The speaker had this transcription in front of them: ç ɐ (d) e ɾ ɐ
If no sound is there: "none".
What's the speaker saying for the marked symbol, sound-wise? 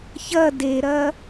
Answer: d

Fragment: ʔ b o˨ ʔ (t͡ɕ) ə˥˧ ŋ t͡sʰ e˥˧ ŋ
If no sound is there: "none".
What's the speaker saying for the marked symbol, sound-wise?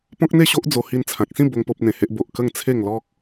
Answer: k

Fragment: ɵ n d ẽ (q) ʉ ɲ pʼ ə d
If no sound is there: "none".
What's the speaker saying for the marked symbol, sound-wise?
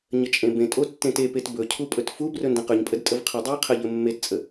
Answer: q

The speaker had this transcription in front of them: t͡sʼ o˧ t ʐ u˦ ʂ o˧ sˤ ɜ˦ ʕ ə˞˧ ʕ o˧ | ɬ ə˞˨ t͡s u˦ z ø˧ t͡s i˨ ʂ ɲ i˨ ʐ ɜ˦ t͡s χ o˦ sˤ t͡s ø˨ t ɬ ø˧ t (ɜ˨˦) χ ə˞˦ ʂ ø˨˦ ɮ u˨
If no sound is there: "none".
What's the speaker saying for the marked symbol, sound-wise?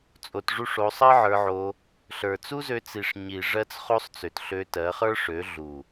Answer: ɜ˨˦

